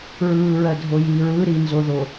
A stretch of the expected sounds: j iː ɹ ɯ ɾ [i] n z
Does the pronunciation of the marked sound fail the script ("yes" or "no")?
no